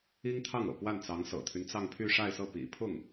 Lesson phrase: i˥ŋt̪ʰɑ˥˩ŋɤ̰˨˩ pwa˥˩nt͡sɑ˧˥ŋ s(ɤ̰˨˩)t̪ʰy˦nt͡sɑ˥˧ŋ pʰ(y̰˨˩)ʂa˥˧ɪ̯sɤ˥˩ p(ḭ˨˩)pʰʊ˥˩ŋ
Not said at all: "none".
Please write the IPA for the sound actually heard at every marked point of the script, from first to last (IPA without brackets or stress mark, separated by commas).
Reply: ɤ̰˨˩, y˥˧, ḭ˨˩